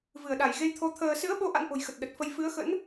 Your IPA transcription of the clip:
vɨ˧˩ə̯ɗa˧˩jɣe˧jt̪ʰo˨˦ t̪ʰəː˧ sɨ̰˧˥ə̯ɓo˨˦ ʔa̰˧˥nʔo̤˨˩jxə˨˩t̚ ɗə˨˩t̚fə˧j fɨ˨˦ə̯xə̰˧˥n

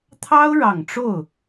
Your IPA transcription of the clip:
t̪ʰɑ˥ʊ̯ɻɑ˨˩ŋʈ͡ʂo˥˩ʊ̯

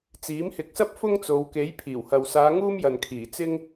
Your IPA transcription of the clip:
t͡siː˨˥mhɪ˨˥k̚sɐ˥p̚ fʊ˥ŋt͡so˨˧wke˨˥j pʰiː˨˩whɐ˨wsaː˨˧ ŋuː˥mjɐ˨nkʰiː˨˩ t͡sɪ˧ŋ

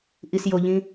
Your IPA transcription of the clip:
ʔisjoʎĩ

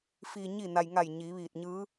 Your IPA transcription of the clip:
fi˩ɲi˧˩ na˩jŋa˧˩j ɲiː˩˧ʋiː˧˩t̚ɲɯː˧˥

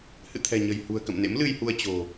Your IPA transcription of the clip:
hɨ̰˧˨t̪ʰɛ̤˨˩ɲə̤˨˩j hṳ˨˩ə̯kə̰˧˨mnḛ˧˥m lɨ˧jhu˧ə̯ t͡ɕo̤˨˩

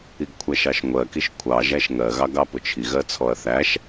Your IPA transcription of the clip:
iɡkʷʰæʃɑʃŋʷɜ kiʃkʷʰɑ ʒæʃŋɜ ɣɑɡɑpʊt͡ʃʰi ɣɜt͡sʰɔɐ̯θæʃ

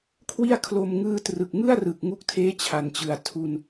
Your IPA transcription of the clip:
kʰwi˥˩a̯kʰlo˧m ŋɯː˧trɯ˨˩k̚ŋɯ˥˩a̯rɯ˨˩k̚ ŋu˦˥k̚tʰeː˦˥t͡ɕʰa˩˦nt͡ɕɯ˨˩a̯ tʰu˧n

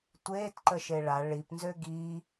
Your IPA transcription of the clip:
tʷeːtǃəʃe ɭa ɭipnzø ɡi

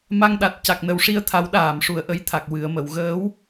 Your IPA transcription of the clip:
ma˧ŋɗa˨˩t̚ ca˨˩k̚nə˨˩wʂi˧ə̯t̪ʰa˨˩˦w ɗaː˨˩˨mʂu˨˩ə̯ʔə˧jt̪ʰa˨˩k̚ wɨ˨˩˨ə̯mə˨˩˨wɣəː˧˥w

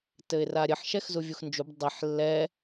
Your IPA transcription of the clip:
tɘɪ̯raɾʲɘħ ʃɛxzuvʲuxnd͡ʒub dˤiħ lːɛ

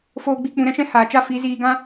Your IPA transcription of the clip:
foː˦ɡ͡bi˦ k͡pũ˧ɾɛ̃˦ʃɛ̃˦ haː˨t͡ʃa˦ fi˨˦ziː˧ɡã˦

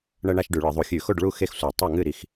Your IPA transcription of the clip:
ɳɐ˧ɳa˧ʃ ɖʉ˧˩˧ɭɨ˧˩˧ðˤu˧˩˧ xʲʉ˧˩˧xo˥˩ɖɭu˥˩ xe˥˩xsʷa˧˩˧tˤo˥˩ ŋɨ˥˩ɾi˧x

